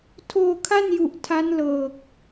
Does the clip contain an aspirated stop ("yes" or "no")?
yes